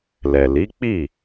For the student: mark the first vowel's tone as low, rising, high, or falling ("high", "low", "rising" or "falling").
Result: low